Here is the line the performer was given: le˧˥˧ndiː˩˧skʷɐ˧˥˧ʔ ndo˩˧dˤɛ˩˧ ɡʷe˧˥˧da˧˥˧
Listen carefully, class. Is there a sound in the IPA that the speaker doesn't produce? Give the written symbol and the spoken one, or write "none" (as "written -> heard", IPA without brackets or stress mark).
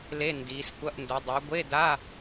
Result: none